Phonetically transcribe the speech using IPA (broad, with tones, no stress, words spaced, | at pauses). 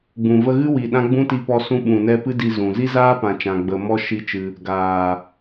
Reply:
ɡ͡bũ˨və˧ɣɨ˦ wi˨ɗã˦ ɡ͡bũ˦ti˧ pɔ˧sũ˧ ɓũ˨nɛ˧pɨ˦ di˧zũ˨ zi˦zaː˦ pã˧t͡ʃã˧ɡ͡bə˧ mɔ˧ ʃi˦t͡ʃɨ˧ | ɡaː˨